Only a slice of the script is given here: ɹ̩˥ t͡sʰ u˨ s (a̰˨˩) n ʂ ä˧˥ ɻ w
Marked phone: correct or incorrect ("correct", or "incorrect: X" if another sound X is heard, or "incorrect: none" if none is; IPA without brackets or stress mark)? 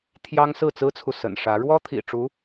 incorrect: ə̰˨˩